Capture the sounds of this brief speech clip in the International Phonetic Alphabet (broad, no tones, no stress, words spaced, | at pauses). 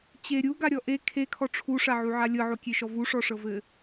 t͡ɕe ɾʲuɡaɾʲɔ ʔe kʰekʰɔ ʈ͡ʂʰuʂaʕuʕa lʲɤʕokʲeʃɔ vuʂɔʂɤvɘ